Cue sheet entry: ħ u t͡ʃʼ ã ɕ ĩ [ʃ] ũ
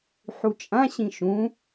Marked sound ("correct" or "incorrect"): correct